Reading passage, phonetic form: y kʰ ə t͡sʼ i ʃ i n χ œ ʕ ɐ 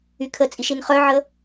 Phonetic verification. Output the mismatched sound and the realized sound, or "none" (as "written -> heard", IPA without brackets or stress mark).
ɐ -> ə